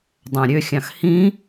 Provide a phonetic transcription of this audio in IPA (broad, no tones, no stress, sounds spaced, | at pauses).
dˤ æ̃ ɾʲ ø xʲ ɑ̃ x h ĩ